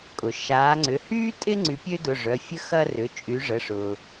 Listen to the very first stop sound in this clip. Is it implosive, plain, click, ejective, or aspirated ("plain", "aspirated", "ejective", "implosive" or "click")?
ejective